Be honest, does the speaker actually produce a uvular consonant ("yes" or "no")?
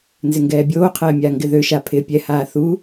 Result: yes